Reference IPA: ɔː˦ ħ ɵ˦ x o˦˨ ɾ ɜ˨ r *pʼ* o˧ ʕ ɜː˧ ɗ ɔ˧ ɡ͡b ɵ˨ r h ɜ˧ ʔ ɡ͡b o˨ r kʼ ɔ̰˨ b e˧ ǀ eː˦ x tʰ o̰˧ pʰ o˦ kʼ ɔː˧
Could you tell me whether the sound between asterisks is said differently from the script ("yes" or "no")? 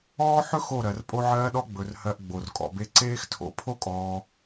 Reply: no